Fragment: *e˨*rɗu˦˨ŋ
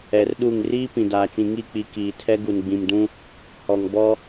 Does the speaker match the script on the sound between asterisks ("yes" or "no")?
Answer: no